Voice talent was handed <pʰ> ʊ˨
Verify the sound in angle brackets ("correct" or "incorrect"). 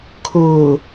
incorrect